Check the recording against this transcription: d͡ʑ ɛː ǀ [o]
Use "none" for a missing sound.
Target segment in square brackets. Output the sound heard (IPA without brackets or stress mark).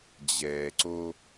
o